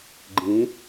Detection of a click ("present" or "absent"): present